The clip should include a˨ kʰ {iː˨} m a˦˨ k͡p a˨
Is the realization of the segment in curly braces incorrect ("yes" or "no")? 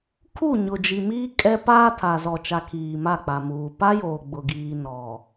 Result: no